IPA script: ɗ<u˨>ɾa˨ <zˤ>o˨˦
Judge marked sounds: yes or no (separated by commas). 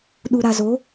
yes, no